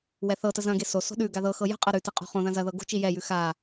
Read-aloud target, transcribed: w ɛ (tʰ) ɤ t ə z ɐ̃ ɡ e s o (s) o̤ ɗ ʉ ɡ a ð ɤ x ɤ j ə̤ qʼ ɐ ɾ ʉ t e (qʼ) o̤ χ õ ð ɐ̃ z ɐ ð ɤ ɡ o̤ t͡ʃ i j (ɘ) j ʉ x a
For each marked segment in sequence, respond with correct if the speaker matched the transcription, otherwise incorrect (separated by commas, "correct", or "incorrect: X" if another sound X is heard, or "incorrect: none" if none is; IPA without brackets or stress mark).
incorrect: θ, correct, correct, incorrect: ɛ